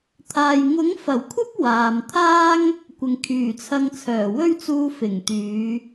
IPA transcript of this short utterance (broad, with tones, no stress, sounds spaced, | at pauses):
t̪ʰ aː˨ j ŋ ʊ˨˥ ŋ f ɐ˨˩ w kʷʰ ɐ˥ p̚ w aː˨ m t̪ʰ aː˥ ŋ | kʷ ɪ˨ ŋ kʰ yː˨˩ t͡sʰ ɐ˧ ŋ t͡sʰ œː˨˩ w ɵ˥ ɥ t͡s uː˧ f ɪ˨˩ ŋ t̪ yː˨˧